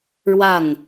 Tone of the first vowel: falling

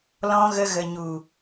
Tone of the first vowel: high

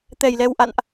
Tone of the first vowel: low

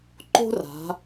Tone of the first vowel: high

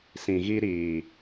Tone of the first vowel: low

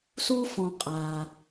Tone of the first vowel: high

